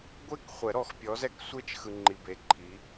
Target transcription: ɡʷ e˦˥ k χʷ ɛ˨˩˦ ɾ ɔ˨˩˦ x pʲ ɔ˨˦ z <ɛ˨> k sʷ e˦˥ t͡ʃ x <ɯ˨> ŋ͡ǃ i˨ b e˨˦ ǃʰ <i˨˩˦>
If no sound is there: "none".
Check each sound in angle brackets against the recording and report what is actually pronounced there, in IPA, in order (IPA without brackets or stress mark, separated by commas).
ɛ˦˥, ɯ˨, i˨˦